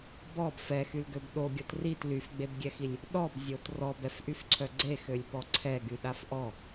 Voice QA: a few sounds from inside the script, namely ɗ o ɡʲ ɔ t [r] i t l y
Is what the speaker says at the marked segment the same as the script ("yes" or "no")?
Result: yes